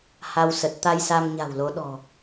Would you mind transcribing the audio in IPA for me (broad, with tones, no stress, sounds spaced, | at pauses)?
h a˧ w s ə˨˩ t̚ t̪ a˧ j s a˧ m ɲ a̤˨˩ w l o˨˦ ɗ ɔ̤˨˩